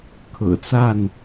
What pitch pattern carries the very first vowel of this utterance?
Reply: low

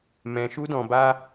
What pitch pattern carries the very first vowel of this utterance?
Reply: low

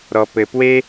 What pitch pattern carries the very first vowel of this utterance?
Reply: low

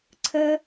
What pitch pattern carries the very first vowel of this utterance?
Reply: high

